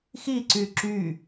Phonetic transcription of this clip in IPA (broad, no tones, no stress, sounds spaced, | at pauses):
x i ǀ y ǁ y